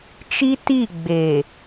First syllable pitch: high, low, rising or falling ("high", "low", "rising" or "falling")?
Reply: high